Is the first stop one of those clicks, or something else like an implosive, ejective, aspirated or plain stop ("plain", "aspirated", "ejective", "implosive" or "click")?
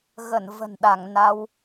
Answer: implosive